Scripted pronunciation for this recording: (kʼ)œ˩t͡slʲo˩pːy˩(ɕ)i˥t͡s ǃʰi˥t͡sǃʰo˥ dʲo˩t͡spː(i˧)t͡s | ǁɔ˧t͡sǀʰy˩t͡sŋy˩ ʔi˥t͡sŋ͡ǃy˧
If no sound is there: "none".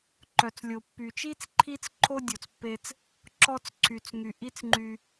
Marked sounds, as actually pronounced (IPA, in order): ǃ, t͡ʃ, e˧

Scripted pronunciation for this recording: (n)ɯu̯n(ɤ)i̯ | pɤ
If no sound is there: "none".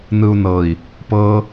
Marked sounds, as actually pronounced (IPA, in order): n, ɤ

